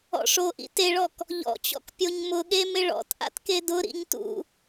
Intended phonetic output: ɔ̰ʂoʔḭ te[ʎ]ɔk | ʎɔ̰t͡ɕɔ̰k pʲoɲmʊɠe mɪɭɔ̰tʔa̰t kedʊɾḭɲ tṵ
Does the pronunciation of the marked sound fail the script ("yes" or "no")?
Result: yes